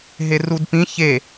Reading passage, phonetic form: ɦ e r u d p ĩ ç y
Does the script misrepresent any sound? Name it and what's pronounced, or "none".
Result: y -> e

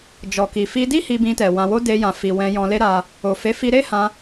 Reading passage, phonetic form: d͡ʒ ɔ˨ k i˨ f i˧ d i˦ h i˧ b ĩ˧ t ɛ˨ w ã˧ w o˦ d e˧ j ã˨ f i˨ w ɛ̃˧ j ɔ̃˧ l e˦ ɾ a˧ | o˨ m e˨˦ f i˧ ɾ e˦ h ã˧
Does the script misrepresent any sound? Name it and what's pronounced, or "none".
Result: m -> f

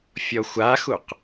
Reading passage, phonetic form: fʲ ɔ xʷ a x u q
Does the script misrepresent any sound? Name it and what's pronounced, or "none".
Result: none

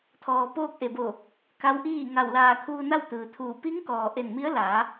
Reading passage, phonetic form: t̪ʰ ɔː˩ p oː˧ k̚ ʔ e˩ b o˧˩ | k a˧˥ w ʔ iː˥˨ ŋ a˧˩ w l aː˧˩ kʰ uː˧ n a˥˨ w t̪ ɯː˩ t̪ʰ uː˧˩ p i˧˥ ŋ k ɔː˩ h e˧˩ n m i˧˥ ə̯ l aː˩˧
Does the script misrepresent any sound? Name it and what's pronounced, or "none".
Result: h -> ʔ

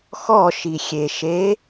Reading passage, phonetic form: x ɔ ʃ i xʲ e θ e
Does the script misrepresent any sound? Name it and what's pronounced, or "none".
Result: θ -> ʃ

